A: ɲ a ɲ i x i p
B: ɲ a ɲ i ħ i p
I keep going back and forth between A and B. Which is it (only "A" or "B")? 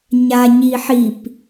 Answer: B